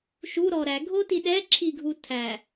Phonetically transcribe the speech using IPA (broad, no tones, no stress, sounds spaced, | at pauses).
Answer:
ʃ u ɾ ɔ ɾ æ ɡʱ o t i ɗ ɛ ǁʰ i ɡʱ u tʰ æ